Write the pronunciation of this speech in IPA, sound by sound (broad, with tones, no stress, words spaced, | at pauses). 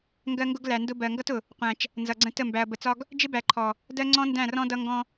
ŋɡɜ˦ŋɡʊ˦ɡ læ˨ndʊ˦ bɜ˨ŋɡʌ˦tʊ˨ | qʷæ̃˨t͡ʃ | nzʌ˨ɡ͡ǀə̃˦ tə˦˨mbæ˨ɐ̯ bə˨t͡sɒ˦ɡ | d͡ʒɪ˦bæ˨ ǃʰɔ˨ | dɜ˦ ŋ͡ǀɔ̃˦ndæ̃˦˨rɔ̃˦ dʌ˦ŋɡɔ̃˦